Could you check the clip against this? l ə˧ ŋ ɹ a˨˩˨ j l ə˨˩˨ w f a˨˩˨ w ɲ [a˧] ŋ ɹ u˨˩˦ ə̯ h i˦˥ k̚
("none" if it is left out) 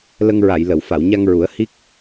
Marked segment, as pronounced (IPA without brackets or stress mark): a˧